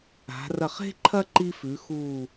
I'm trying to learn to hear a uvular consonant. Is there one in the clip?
yes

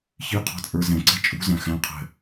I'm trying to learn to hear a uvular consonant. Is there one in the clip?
yes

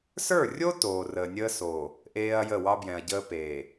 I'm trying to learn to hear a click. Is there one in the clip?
no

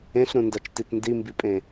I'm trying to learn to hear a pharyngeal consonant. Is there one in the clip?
no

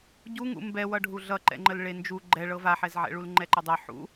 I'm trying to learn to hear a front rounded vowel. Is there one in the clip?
no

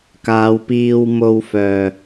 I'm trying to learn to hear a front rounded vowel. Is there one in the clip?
yes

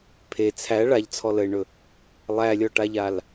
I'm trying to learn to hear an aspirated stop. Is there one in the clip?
yes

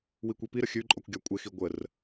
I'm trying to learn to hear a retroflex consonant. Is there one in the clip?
no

